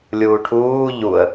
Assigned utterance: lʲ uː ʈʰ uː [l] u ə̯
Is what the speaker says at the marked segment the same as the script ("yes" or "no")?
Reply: no